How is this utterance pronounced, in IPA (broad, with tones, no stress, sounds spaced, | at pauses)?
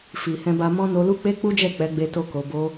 f i˨ h ɛ̃˧ b a˧ m ɔ̃˦ n o˧ l u˦ k͡p e˦ k͡p u˦ d͡ʒ ɛ˦˨ k͡p ɛ˨˦ ɡ͡b e˧ t o˧ k o˨ b o˧